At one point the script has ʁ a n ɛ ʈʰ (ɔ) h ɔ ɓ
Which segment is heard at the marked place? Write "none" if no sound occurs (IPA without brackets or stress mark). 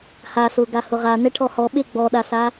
ɔ